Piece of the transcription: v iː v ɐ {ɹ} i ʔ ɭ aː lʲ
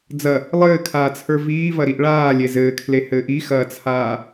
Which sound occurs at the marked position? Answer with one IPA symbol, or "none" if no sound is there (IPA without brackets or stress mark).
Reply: ɾ